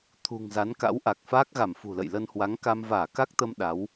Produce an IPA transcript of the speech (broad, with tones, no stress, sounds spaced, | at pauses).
t̪ʰ ṳ˨˩ ŋ z a˨˦ n k a̰˧˥ w ʔ a˨˩ k̚ f aː˦˥ k̚ ɣ a˧˩ m f ṳ˨˩ l ə̰˧˨ j l ə˧ n h w a˨˦ ŋ k a˧ m v aː˧˩ k a˦˥ k̚ t̪ ə˧ m ɗ a˨˦ w